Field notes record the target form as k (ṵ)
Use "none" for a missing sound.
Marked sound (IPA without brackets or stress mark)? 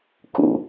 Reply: ṵ